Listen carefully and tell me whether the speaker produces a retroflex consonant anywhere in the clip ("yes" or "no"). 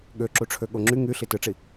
yes